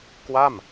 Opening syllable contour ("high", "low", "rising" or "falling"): falling